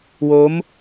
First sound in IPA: w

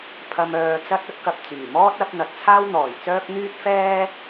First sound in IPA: pʰ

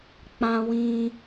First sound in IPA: k͡p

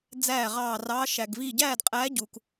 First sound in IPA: d͡z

